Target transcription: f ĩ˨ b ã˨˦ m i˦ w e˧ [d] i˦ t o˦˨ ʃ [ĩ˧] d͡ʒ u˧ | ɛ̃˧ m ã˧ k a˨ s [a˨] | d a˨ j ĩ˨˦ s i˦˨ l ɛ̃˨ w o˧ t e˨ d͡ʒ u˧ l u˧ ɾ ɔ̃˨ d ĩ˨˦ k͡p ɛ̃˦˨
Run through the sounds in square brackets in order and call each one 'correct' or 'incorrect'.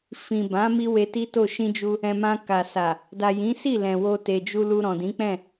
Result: incorrect: t, correct, correct

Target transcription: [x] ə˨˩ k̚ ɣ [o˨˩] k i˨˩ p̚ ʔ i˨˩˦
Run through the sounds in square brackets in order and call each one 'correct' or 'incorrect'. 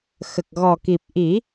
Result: correct, incorrect: ɔ˨˩

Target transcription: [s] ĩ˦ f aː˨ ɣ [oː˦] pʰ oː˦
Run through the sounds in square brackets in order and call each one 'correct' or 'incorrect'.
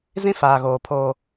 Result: incorrect: z, incorrect: oː˨

